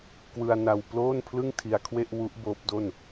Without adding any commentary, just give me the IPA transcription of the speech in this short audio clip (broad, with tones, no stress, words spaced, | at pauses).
kwɯ˧a̯na˧w ploː˥˩n pʰlɯ˥˩ŋtʰi˧a̯ kʰwe˥˩ʔwu˦˥ʔ boː˦˥p̚do˥˩n